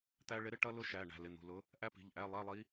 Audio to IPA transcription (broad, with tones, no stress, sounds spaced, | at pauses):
t̪ æ˥ ɭ ɪ˧˥ ɾ ɪ˧˥˧ ʈ ʌ˥ l ʊ˥ ʃ æ˩˧˩ ɳ æ̤˩˧˩ l ɪ˩˧˩ n̪ ṳ˩˧˩ l ʊ˧˥ | ʔ æ˥ p i̤˩˧˩ ʎ ʔ æ˧˥˧ lˠ æ˧˥˧ lˠ i˧˥